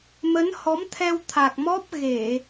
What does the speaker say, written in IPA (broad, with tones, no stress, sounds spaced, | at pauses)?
m ə˨˦ n h ɔ˨˦ m t̪ʰ ɛ˧ w t̪ʰ a˨˩ k̚ m ɔ˦˥ p̚ ɣ e˧˩˨